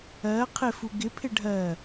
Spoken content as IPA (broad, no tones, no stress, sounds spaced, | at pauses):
ɜ qʰ ɪ f u ɡ ɪ pʰ ɪ ɖʱ ɜ